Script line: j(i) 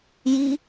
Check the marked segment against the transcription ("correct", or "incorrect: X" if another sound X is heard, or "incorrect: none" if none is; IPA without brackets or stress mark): correct